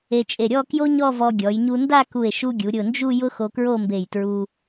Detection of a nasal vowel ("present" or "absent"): absent